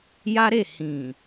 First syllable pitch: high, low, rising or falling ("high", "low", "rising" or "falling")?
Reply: high